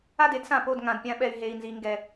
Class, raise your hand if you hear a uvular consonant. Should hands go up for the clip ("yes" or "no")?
no